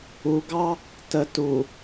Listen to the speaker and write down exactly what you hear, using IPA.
u ɡ ɑ | t ə t u

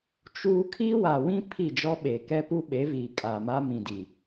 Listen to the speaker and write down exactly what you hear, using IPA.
t͡ʃ uː˦ kʰ i˦ w a˨ w ĩ˦ pʰ i˦˨ d͡ʒ ɔ˦ ɓ e˨ k ɛ˦ p u˦ ɓ e˨˦ v iː˨ kʼ a˨ m a˦ m ĩ˨ d i˨

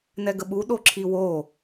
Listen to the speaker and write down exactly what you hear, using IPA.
n ɛ ɡ ə ɓ u ɗ o ǁʰ i w o

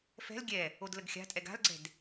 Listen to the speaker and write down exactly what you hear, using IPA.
f ɛ̤ l ɡʲ ɛ | o d l ə ɡ xʲ a̤ tʼ ɛ ɡ a̤ l ɡ͡ǀ ɛ̤ d

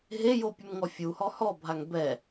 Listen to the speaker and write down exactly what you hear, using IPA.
ɦ e j o pʲ u m ŋ ɔ fʲ u h ɔ h ɔ bʱ a ŋ b ɛ

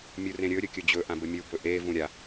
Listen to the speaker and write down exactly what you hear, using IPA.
mʲ u r ẽ ɾʲ ɵ ɾʲ ɵ kʲ ɵ d͡ʑ ɵ ʔ ã b ɘ mʲ u b ɵ ʔ e v ũ ɾʲ a

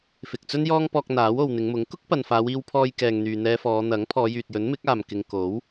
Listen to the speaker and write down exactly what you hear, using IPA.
f ɪ˨ k̚ t͡s ɵ˥ n j ɔː˥ ŋ p ɔː˧ k̚ n̪ aː˨˥ w o˨ w n̪ ɪ˨˧ ŋ m ʊ˨˥ ŋ k ʊ˥ k̚ p ɐ˨ n f aː˨˧ w iː˧ w pʰ ɔː˧ j k ɛː˨ ŋ n̪ yː˨ n̪ ɛː˧ f ɔː˨˧ n̪ ɐ˨˥ ŋ pʰ ɔː˨˧ j yː˨ t̚ j ɵ˨˥ n m ɪ˨˥ k̚ aː˨ m k ɪ˨ ŋ k o˨˥ w

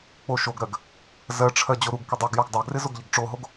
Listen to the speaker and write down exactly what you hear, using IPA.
k͡p o ʃ o ɡ ɾ ɜ ɡ | z ɜ ʈ͡ʂʰ ɜ d͡ʑ o ɾ u ɡ k ɪ dˤ ʌ ɡ j ɒ ɡ dˤ ɜ ɡ r ɪ z o ɡ ʎ ə ɡ ʈ͡ʂ o ɦ o ɡ

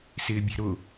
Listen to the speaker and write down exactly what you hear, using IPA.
s ɪː bʲ ɛ̤ ɾ ʊ

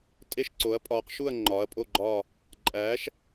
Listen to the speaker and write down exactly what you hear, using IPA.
tʼ e˥˧ ʃ ǀ o˨˥ ɐ̯ pʼ ɒː˨˥ q ʃ u˥˧ ɐ̯ ŋ͡ǃ ɒː˨˥ ɐ̯ pʼ o˥˧ ɡ͡ǃ ɒː˥˧ | ǃʼ æː˨˥ ʃ

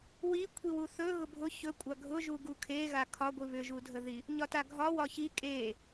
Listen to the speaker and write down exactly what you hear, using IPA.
w i kʷʰ i w u θ ɵ ɣ ʊ bʱ ʊ ç ɵ kʷʼ a ɡʱ ʊ ʒ u ɡ u kʰ e ɣ a kʰ ɒ ɡʷ i β ʏ ʒ u dʱ ə ð i | ɲ ɒ t a ɡʱ ɒ w ɒ ç i kʼ e

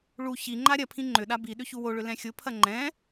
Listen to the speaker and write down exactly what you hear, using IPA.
ɭ u ç i ŋ͡ǃ a ɾʲ ɐ pʰ ĩ ŋ͡ǃ ʏ ɗ a b i ɗ ʏ ç u w o ɭ ʏ l ɛ̃ xʲ ʊ pʰ ɐ ŋ͡ǃ ɛ̃

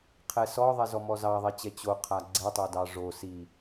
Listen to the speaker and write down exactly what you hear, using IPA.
qʰ ɛ s ɔ ðˤ ɛ z ɔ m ɔ z ɑ ðˤ ɛ t͡ɕ ɛ t͡ɕ o qʰ a ɡ͡ǀ ɛ tˤ o d ɑ ʐ o s i

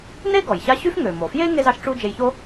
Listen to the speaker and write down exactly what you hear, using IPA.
n e˥ ɡ ɔ˩ j ɕ a˦ ɕ y˥ f ŋ ø˩ m o˩ f j e˥ ŋ e˥ z ɑ˥ ʃ ʈ͡ʂ u˥ d͡ʒ e˨ j ç o˦

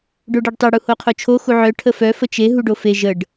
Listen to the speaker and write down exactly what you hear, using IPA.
ɖ o ɖ e ɖ tˤ e ɽ u h o qʰ o t͡ʃʰ o x u ʕ œ ʈʰ ə f œ f ə t͡ʃ e ɦ u ɖ o f e ʒ ə ɖ

